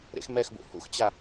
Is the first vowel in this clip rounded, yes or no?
no